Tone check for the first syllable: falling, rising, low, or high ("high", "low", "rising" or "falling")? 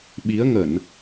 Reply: rising